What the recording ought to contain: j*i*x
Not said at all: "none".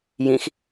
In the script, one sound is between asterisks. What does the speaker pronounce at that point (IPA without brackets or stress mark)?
ĩ